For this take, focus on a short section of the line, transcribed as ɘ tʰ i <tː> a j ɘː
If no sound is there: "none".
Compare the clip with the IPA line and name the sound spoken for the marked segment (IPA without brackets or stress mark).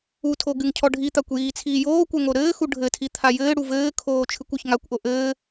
t̪ʰ